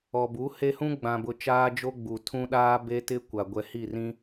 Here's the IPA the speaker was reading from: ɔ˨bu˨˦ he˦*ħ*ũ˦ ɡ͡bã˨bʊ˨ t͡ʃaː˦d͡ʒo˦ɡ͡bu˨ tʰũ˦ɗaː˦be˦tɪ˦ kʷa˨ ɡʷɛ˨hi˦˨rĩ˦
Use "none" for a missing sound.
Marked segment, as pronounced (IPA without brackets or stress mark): h